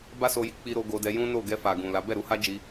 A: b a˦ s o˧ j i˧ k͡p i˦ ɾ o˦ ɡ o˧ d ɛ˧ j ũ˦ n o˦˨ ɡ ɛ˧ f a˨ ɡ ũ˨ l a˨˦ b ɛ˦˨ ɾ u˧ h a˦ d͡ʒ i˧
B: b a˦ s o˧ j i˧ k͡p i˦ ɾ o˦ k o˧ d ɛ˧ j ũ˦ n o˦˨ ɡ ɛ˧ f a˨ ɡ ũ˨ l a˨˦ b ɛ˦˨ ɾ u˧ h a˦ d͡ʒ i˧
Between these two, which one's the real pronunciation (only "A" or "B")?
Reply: A